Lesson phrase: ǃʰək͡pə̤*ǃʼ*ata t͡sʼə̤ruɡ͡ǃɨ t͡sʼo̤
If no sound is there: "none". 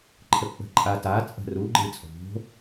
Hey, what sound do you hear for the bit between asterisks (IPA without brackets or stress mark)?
ǃʼ